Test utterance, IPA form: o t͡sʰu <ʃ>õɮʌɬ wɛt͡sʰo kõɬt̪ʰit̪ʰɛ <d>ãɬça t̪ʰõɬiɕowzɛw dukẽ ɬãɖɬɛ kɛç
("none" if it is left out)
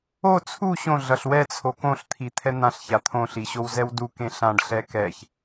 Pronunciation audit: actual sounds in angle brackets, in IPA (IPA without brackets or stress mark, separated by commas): ɕ, n̪